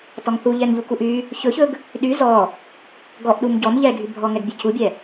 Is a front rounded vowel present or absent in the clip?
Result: present